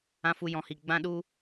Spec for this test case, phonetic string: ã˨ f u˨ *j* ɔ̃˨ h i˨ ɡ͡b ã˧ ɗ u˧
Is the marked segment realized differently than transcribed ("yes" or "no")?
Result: no